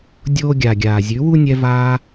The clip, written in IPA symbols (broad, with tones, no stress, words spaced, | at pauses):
dʲoː˦ɡʲa˨ɡʲaː˨ zʲʉ˨˦wu˦nʲɛ˧vaː˧